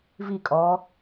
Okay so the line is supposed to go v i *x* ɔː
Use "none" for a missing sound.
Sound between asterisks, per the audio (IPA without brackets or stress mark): kʼ